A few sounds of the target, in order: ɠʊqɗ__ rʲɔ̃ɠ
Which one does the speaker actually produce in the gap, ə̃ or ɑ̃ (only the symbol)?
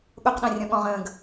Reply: ɑ̃